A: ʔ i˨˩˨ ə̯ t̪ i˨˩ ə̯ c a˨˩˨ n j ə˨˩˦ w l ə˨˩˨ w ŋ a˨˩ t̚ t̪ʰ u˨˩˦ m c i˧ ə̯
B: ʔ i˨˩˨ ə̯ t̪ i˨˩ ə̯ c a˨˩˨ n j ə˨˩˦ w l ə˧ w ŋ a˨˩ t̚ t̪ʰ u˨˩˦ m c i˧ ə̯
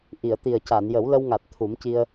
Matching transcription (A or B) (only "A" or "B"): B